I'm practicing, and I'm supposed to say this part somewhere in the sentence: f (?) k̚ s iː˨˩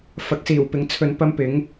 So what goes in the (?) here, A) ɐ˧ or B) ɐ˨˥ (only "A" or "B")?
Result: B